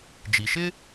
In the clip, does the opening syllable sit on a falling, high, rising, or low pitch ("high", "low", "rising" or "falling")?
low